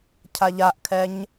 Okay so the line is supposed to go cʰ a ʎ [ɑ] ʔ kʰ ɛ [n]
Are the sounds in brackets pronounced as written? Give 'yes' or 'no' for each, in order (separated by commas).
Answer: no, no